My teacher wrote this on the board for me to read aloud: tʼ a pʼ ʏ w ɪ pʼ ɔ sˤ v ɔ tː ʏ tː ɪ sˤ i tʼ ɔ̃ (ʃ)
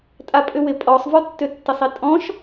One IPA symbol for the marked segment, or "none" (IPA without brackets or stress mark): ʃ